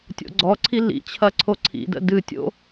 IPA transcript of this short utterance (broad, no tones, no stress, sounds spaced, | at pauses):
tʲ o̰ ɡ͡ǀ ɔ ǀʰ i l ḭ t͡ɕʰ ɐ ǀʰ o ǀʰ ḭ d ə̰ d ɨ tʲ o̰